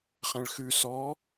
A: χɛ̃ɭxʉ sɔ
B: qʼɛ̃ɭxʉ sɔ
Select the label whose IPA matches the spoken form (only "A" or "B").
A